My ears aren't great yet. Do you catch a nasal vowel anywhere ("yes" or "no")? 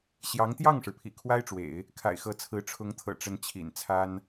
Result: no